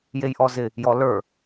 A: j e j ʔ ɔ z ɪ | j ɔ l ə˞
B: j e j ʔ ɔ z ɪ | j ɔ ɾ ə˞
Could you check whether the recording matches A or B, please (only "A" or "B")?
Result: A